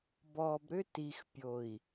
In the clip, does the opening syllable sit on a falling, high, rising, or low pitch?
low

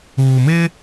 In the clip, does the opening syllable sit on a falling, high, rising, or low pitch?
low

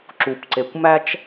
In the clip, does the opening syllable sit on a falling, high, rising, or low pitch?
low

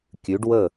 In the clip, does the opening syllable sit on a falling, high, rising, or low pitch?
rising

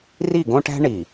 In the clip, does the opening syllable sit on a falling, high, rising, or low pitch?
falling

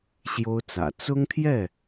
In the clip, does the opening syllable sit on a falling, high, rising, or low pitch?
high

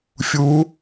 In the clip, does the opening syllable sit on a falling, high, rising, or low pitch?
rising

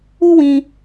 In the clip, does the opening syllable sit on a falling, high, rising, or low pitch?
high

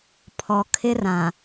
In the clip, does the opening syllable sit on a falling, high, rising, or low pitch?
low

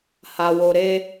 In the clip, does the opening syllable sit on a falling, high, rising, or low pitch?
low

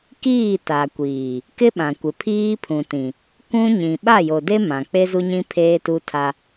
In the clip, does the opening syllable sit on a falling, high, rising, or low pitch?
falling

